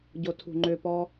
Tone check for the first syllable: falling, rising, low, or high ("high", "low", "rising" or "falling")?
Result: low